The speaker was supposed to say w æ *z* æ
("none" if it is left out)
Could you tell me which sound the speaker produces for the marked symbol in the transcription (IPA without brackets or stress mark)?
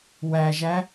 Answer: ʒ